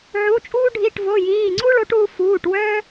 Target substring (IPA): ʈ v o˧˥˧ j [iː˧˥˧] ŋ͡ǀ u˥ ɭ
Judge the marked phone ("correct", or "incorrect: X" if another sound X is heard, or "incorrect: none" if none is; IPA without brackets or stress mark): correct